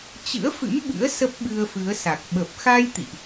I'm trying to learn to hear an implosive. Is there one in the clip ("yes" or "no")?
yes